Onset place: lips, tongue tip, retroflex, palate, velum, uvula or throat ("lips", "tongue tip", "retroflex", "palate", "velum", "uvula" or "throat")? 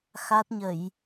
velum